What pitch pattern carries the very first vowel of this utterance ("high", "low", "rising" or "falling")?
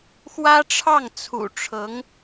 high